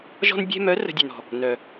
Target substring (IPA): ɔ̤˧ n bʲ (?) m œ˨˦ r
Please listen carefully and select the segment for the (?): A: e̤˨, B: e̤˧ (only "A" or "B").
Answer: B